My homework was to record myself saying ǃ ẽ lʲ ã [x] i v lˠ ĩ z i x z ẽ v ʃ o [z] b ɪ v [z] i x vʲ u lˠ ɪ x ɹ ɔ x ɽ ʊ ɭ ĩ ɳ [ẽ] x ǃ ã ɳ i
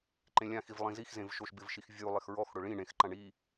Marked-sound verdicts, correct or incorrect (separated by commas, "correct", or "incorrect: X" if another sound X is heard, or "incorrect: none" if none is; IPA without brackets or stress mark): correct, incorrect: ʃ, incorrect: ʃ, correct